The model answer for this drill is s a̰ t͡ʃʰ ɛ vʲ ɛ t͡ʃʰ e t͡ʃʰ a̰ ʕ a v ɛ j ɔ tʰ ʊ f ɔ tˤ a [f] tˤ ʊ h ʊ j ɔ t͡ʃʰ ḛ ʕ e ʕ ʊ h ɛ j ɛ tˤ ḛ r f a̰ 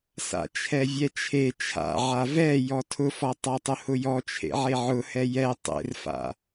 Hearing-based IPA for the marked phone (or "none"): none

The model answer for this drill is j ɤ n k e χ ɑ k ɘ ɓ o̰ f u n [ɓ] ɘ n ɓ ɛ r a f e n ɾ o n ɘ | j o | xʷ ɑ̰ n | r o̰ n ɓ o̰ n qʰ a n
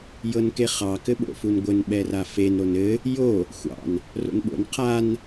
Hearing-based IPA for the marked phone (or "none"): ɡʷ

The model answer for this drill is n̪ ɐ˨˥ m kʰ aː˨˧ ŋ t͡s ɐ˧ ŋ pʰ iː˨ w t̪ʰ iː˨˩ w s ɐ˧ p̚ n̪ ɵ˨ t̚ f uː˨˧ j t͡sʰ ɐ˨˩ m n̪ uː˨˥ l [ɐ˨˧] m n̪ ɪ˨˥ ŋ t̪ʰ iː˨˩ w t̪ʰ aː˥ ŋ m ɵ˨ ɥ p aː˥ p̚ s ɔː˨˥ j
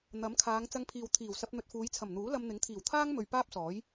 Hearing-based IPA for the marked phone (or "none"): ɐ˧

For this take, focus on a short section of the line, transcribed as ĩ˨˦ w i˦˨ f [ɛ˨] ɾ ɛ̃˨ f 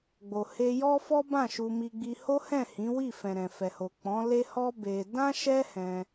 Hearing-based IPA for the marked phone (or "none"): ɛ̃˨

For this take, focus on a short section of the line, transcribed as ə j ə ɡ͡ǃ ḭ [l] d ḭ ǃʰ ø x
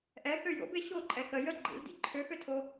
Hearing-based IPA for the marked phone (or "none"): l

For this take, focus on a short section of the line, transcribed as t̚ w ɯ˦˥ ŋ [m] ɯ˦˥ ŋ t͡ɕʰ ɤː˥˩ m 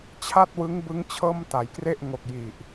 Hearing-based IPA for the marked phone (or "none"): b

